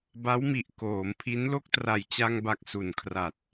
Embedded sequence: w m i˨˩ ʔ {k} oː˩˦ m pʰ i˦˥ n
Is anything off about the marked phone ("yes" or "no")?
no